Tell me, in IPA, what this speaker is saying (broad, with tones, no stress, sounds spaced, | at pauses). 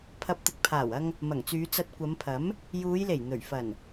pʰ ɐ˧ p̚ t̪ ɪ˨ k̚ pʰ aː˨˩ w ɐ˧ ŋ | m ɐ˨˩ ŋ t͡s yː˨˧ t͡s ɐ˧ t̚ kʷ ɐ˨˧ m pʰ ɐ˨˥ m | j uː˨˧ j l e˨˩ j n̪ ɵ˨˩ ɥ f ɐ˨˩ n